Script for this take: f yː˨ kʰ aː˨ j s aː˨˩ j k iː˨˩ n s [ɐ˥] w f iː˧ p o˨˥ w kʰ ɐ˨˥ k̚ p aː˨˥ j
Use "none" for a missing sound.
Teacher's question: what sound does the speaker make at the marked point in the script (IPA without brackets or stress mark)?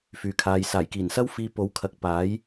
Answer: ɐ˥